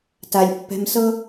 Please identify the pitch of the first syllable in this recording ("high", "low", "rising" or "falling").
low